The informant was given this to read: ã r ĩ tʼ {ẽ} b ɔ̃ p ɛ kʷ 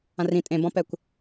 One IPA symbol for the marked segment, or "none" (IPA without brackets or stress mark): ẽ